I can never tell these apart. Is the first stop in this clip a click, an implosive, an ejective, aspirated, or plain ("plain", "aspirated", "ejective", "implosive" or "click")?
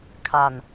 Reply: aspirated